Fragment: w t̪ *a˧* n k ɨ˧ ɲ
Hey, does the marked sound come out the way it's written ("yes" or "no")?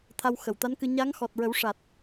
no